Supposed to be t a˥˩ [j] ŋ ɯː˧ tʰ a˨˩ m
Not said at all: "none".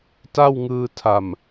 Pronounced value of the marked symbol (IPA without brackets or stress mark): w